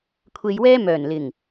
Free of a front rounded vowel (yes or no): no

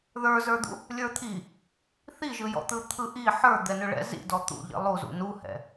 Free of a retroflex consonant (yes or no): no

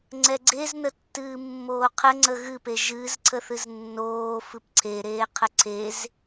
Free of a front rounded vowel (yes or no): yes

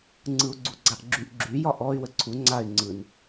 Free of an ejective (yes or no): yes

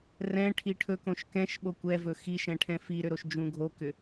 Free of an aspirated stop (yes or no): no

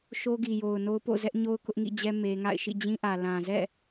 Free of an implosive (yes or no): yes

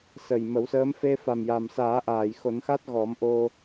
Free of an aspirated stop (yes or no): yes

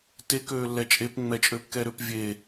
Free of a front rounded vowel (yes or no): no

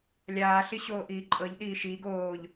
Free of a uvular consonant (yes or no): yes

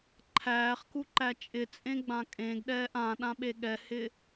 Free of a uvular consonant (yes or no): no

